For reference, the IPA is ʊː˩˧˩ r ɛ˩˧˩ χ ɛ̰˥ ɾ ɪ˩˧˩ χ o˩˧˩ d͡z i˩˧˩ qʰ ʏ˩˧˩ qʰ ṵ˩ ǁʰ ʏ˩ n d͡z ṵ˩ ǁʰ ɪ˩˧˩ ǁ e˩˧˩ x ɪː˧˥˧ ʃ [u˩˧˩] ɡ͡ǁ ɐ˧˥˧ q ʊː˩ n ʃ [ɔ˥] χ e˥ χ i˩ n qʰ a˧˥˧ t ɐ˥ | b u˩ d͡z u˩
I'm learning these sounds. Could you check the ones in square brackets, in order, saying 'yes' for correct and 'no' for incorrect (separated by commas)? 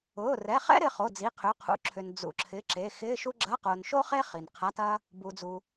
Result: no, no